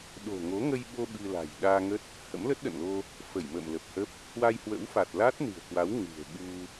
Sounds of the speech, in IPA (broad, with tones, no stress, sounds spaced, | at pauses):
ɗ o̤˨˩ ŋ o˨˦ ŋ ə˧ j ɓ o˧ ɓ ɨ˧ l a̤˨˩ j ɗ aː˧ ŋ ə˦˥ t̚ | h ə̰˧˥ m l ə˦˥ t̚ ɗ ə̰˧˨ n l o˧ | f ə˧˩ j m ə̰ː˧˨ m l ə˨˩ p̚ h ə˦˥ p̚ | h w a˧ j h w ə̰˧˥ w f a˨˩ t̚ l a˦˥ t̚ n ɨ̤˨˩ ə̯ k w a˨˦ w ŋ ɨ̤˨˩ ə̯ ɓ u˧